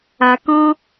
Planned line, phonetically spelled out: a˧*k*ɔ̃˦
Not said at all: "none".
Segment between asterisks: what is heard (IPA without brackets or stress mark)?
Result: k